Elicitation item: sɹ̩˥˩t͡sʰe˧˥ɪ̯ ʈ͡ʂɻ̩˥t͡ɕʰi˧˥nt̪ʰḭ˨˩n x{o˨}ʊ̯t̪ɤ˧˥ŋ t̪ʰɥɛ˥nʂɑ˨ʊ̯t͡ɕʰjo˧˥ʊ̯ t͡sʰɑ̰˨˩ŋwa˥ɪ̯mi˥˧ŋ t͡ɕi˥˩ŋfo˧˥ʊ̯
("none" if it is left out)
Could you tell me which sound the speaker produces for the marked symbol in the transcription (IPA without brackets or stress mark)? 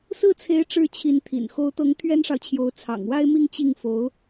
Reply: o˧˥